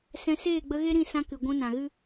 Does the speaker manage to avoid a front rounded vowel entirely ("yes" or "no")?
yes